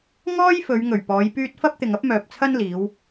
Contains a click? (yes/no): no